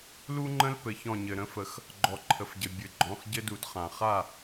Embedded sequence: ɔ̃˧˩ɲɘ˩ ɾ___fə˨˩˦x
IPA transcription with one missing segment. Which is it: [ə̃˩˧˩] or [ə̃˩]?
ə̃˩˧˩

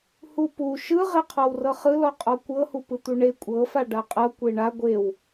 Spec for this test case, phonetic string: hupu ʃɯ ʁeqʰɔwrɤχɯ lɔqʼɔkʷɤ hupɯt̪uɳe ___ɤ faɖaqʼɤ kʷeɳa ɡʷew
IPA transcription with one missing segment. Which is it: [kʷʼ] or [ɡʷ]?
kʷʼ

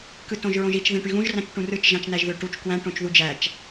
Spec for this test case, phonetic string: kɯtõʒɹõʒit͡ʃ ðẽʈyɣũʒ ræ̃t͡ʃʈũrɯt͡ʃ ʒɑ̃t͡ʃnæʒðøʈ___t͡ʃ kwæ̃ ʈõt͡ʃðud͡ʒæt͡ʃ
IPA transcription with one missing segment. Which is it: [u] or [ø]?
u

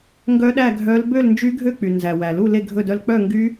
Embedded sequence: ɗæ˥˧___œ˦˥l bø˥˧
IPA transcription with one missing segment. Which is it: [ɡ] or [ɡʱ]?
ɡʱ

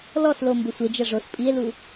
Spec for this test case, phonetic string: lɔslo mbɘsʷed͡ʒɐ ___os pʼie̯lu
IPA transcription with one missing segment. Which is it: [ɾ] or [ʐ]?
ʐ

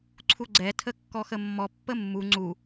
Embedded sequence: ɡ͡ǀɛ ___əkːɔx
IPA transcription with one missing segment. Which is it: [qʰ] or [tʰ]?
tʰ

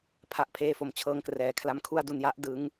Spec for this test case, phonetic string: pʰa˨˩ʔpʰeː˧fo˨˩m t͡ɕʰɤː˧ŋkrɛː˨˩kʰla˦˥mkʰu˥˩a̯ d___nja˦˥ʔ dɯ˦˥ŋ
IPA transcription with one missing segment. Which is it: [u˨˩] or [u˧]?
u˧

